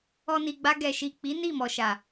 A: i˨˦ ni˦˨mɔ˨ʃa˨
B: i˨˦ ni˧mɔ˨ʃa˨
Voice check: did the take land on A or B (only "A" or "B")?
A